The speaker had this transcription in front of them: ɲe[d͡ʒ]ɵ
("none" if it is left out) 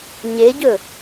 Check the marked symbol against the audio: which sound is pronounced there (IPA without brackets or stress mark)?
ɟ